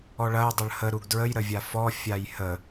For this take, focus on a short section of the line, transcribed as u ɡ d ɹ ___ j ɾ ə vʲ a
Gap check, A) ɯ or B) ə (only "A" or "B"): B